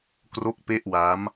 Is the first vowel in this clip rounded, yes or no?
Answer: yes